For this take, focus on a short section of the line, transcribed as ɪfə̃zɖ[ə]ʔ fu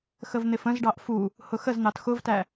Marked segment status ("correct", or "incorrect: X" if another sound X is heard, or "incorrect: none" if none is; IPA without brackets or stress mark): incorrect: ɑ